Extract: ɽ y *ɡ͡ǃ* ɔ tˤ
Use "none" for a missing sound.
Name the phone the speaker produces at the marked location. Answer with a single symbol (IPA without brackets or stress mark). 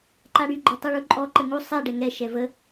ɡ͡ǃ